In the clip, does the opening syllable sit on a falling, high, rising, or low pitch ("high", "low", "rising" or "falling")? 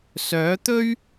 rising